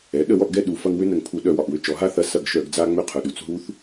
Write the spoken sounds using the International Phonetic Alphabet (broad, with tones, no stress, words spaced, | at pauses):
ɛ˩˥ ɗə˧˩˧wɔ˦˨ʔɡɛ˦˨ ɗu˩˧fɐ˦ŋ wʏ˦nə˩ŋpʰu˧˩˧ ɗœ˧˩˧wɒ˩ʔwʏ˦˨t͡ʃɔ˩˧ ɦa˦θɐ˩˥ sɐ˧˩˧ɡʃœ˧˩˧ɡd͡za˦ ŋ͡mʏ˦˨qʰœ˩ɗu˩˧t͡s ɦu˦θ